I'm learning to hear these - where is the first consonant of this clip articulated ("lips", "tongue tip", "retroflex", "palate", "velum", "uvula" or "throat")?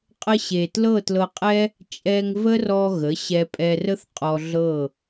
uvula